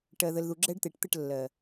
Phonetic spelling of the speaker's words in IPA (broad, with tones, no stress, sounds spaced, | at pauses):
ʈ ɜ˨ ð ə˨ l ð u˨ ɡ͡ǁ ɛ˦ ɖ t̪ e˨ ʈ t̪ ə˦˨ ʈ lː ɜ˨